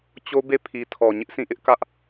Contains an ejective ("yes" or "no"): no